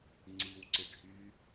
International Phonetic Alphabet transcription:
ŋ͡ǀ i w ǀ ɪ ɖʱ yː

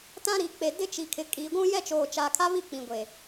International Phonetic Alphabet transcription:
t ã˦ ɾ i˨ k͡p e˨ d ɪ˦ t͡ʃ i˨ kʰ ɪ˨˦ kʼ iː˨ ɡʷ ũ˦ j ɛ˦ t͡ʃ oː˨ t͡ʃ a˨ kʰ a˦ β i˦˨ k͡p ĩ˨ ɡʷ e˨

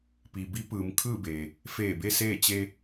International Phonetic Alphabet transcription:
p i˩ b i˧˥ p ɯː˩˧ m kʰ ɯː˥˨ b eː˩ | f eː˧˩ b e˧ s eː˥˨ t͡ɕ e˧

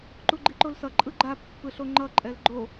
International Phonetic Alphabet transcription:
ǃ u ɡ͡ǃ i ǃ o l s ʌ ǃʼ ɯ ɡ͡ǃ a pː ɯ ɬ o ŋ͡ǃ ʌ ǃʼ ɛ l ɡ͡ǃ o

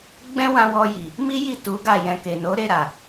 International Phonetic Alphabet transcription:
ɡ͡b ɛ̃˦ w ã˧ w ɔ˧ j i˨ | m i˦ j i˦˨ t u˨˦ ɡ a˦˨ j ɛ̃˧ k e˨ n o˨˦ ɾ e˦˨ ɾ a˨

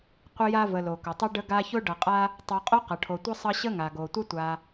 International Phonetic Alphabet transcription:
qʷ ə˦ j a˦ v ə˨ l o˩ k ʊ˩ tˤ ʌ˥ ɖ ə˦ ɡ a˦ ç ʊ˥ ɖ ʌ˨ qʼ a˦ | tˤ ʌ˨ qʼ o˥ q ʌ˩ ʈʰ o˨ tʷ ʌ˥ sˤ ʌ˦ ɕ ə˥ ŋ a˩ ɡ o˩ tʷ ə˥ tʷ a˨

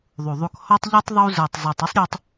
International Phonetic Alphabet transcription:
ðˤ u˨ ðˤ u˨ k h ɔ˧ tˤ ʎ i˧ tˤ ðˤ u˧ z ə˞˨ tˤ zˤ u˨ tˤ ə˦ sˤ ɾʲ o˧ tˤ

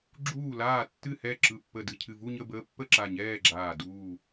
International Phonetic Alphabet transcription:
ɡ͡ǁ uː˧˩ l aː˧˩ tː ɨ˧˩ h ɛ˧˩ ǁ ɯ˧˩ pː ə˧˩ d ɨ˧˩ cʰ ɨ˧˩ v u˥˨ ɲ ə˥˨ b əː˧˥ pː ə˥˨ ǁ a˧˩ ɲ ɛː˥˨ ɡ͡ǁ aː˧˩ d uː˧˩

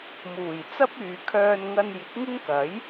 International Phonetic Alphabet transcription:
m uː˨˩ j t͡s ɐ˥ p̚ yː˨ kʰ œː˧ n ŋ ɐ˧ n j ɪ˨˥ k̚ ŋ ɪ˥ ŋ k ɐ˨˥ j

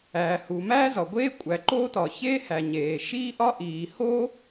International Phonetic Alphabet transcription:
æː˩ h u˩ m æː˥ z ɒ˩ ɡʷ eː˥ kʷʼ æ˩ ǃ oː˥ t ɒ˩ ç eː˥ h æ˩ ɲ eː˩ ʃ iː˥ ʔ ɒ˥ ʔ iː˩ h o˥

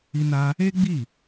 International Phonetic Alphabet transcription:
i˧ n a˧ | e˦ ɡ͡b i˦˨

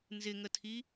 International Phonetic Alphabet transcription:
n z ɪ ŋ ə tʰ i

